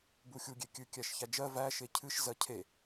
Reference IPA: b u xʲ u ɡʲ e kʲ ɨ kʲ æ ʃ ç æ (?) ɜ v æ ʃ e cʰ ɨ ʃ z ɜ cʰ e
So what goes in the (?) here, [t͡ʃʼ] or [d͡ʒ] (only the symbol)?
d͡ʒ